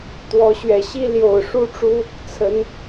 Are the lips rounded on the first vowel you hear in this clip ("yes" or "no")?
yes